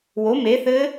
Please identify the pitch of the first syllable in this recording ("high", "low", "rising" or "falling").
rising